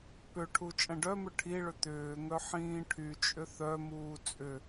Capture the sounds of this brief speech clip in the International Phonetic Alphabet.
p ʏ ʈʰ u t͡ʃʼ ɐ̃ ɖ œ m ʏ ʈʰ i ɭ ʏ t̪ ʏː ŋ œ ħ ĩː ʈʰ y t͡ʃʼ ʏ θ œ m uː t͡sʼ ʏ

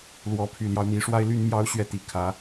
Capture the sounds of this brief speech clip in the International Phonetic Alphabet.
l w ɔ˨˦ pʰ y˨˩ l j ɑ˦ ʊ̯ n̪ i˨˦ ʂ w a˦ ɪ̯ l y˦ n m j ɑ˦ ʊ̯ ɕ ɥ ɛ˥˨ t̪ i˨˩ kʰ ä˨˦

